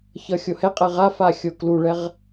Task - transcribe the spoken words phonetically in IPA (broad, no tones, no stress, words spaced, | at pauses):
çʌxʲohɛqʼɛ ʁafa xʲokluɭɛʁ